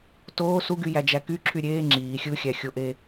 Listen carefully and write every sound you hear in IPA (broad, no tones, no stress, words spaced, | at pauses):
toː suɡyjæd͡ʒæ kyǁʰy ɾʲeː ŋ͡ǁiː xʲɯxʲæxʲoʔe